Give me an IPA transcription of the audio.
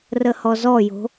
r ə h ɔ z ɔ j o̤

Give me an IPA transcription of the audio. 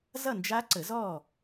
z ʌ˥˨ n d͡ʒ a˦˥ ǀ ə˨˩˦ z ɔː˥˨

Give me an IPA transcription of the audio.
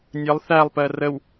nʲ ə lˠ θ æ lˠ p ɜ r ə w

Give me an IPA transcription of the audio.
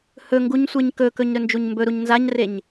h ɵ ŋ ɡ u ɲ sʷ e ɲ k ɵ k ɵ ɲ ɾ ɵ n d͡ʒ u ɲ m b ɵ ɾ u ɲ n z a ɲ r e ɲ

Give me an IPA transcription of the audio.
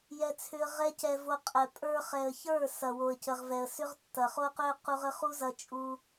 j ɛ˧ t͡sʰ ʏ˧ ə̯ ʁ ɛ˦ c ɛ˧ v o˧ qʼ ɛ˨ pʼ ə˞˧ χ ɛ˨ ə̯ ç ə˞˦˨ s ɐ˨ w o˨ ə̯ c ə˨ ʁ v ɛ˨ ə̯ s ʏ˦ ʁ tː ɐ˨ χ o˦ q ø˦ q u˧ ʁ ə˦ χ u˦ z ɐ˧ t͡ʃʼ u˧

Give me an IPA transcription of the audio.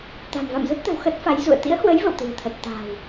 t̪ a̤˨˩ m v a̰˧˨ m z ə˦˥ t̚ t̪ ə̤˨˩ w x ə˦˥ t̚ f a˨˦ j z ṵ˧˨ ə̯ t̪ ḭ˧˥ ə̯ h w ə˨˦ j v ə̰˧˨ w t̪ ɨ̤˨˩ ə̯ t̪ʰ ə˨˩ t̚ t̪ a̤ː˨˩ w

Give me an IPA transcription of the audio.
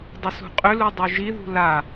dˤ ʏ s ṳ qʼ ʏ l u dˤ u ʒ i ð ṳ l a

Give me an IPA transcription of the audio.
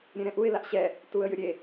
ɾʲ ẽ ɾ ɛ̃ ʔ u ɪ̯ l a ʔ ɕ ɛ | t uː ə̯ j ɨ ɾʲ e

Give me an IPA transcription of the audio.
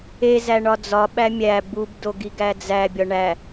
e z æ ɳ ɒ d͡z ɒ ɓ æ mʲ æ b u b d o ɡ i ɡ æ d͡z æ bʲ ɒ ɳ æ

